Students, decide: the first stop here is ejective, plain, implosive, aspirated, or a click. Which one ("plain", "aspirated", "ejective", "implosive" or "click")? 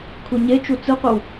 aspirated